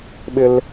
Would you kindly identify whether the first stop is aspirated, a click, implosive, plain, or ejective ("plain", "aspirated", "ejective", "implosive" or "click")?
implosive